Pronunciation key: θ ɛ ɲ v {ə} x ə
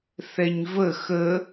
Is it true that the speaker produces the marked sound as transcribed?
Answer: yes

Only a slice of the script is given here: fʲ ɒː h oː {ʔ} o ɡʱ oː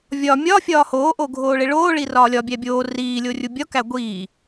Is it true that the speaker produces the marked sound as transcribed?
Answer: yes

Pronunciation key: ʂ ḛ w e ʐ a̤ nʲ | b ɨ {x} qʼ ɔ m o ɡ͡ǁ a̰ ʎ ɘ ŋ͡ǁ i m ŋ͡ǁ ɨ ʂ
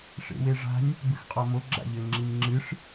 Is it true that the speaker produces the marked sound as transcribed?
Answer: yes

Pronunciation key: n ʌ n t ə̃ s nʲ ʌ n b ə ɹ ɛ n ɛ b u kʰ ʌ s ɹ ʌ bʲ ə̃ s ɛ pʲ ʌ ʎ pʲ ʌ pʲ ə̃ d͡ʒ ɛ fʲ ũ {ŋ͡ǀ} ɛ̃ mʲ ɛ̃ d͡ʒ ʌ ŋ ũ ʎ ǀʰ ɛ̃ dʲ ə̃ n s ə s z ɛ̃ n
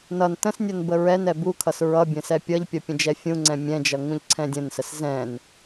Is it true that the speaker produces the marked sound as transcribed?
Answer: yes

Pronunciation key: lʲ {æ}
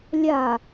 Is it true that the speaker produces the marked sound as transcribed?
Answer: no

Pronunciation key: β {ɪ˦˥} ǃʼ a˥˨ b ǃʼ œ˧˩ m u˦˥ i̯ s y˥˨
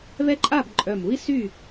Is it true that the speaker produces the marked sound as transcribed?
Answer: no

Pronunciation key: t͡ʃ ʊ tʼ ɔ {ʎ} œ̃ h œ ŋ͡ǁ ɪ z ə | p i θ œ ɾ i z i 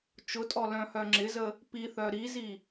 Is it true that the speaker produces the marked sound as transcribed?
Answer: no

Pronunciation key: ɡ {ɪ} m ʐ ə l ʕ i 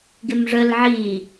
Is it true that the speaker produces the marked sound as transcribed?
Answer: yes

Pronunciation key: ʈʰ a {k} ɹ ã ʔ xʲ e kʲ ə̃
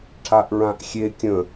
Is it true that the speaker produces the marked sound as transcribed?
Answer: no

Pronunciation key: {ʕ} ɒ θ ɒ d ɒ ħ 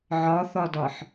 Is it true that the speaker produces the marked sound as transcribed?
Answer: yes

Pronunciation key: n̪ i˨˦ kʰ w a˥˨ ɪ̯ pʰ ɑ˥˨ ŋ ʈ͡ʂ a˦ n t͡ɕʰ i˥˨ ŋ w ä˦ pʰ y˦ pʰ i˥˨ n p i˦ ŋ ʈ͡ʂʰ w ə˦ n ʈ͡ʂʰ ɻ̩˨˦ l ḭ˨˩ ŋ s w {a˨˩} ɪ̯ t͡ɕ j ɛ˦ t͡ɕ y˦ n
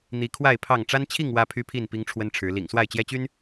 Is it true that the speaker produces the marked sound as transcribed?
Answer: no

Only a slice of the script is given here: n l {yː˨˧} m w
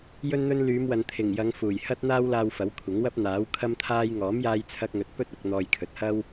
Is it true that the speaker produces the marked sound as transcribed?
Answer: yes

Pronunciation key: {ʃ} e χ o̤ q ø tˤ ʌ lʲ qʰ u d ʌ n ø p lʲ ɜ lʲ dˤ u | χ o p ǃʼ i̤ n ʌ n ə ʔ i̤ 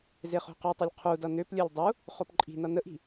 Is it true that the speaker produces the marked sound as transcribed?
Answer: no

